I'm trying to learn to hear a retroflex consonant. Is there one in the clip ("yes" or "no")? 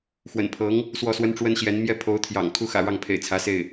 yes